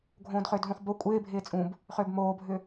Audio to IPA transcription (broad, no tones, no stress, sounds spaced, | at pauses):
ɡʱ õː d χ ʏː d ɦ ũ χ b o kʷʼ ɪː bʱ ɪː t͡sʼ ũ b | χ ʏː b m oː bʱ ʏ